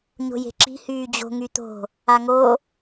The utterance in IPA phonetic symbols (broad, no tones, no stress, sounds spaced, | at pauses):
ɲ o̤ j e̤ ǁ i̤ h yː d͡ʑ o̤ ŋ y t̪ o̤ | a ŋ o